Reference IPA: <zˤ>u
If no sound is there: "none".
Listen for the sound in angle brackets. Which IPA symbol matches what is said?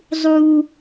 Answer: zˤ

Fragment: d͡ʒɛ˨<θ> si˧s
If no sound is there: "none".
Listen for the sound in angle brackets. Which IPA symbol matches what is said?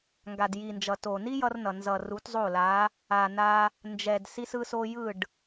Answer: d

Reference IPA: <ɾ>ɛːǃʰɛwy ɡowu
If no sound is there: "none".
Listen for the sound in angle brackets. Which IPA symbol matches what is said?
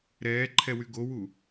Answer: ɾ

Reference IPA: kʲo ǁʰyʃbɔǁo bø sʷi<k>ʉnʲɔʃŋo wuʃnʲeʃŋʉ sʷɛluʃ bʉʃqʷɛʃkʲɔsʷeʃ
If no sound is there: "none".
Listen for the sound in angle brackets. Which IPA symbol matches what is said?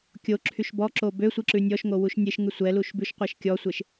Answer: ǁ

